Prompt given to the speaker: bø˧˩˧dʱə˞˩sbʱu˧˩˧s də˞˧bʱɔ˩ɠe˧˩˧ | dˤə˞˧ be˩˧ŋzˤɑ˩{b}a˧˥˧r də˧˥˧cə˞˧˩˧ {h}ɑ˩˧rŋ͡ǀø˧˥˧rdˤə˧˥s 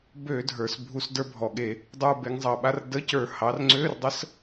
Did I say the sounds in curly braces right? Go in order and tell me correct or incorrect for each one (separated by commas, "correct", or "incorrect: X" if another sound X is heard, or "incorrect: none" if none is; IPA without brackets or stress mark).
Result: incorrect: ɓ, correct